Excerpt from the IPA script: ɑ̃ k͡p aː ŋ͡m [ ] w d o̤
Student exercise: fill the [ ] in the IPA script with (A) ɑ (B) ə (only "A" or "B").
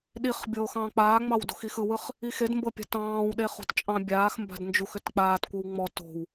A